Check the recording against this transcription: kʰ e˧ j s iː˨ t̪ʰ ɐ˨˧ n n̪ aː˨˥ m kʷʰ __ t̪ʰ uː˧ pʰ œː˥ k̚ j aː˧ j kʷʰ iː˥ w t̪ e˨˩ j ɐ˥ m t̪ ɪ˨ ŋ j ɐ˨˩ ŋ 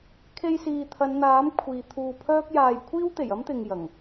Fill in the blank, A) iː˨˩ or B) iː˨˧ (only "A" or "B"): B